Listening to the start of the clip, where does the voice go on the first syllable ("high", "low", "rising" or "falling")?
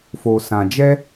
low